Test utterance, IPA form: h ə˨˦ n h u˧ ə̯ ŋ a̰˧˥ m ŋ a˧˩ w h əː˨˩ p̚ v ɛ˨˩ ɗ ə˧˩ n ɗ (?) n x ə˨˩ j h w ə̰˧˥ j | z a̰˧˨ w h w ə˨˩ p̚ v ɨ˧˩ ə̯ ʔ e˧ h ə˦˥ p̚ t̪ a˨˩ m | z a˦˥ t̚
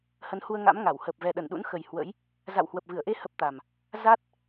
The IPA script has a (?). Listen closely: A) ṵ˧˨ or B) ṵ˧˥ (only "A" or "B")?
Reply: B